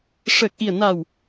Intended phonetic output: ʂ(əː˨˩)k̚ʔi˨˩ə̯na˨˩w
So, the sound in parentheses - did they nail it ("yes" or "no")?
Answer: yes